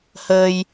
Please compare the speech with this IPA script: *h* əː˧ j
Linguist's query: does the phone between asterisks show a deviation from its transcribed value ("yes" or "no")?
no